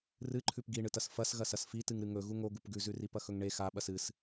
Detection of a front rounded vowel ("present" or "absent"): absent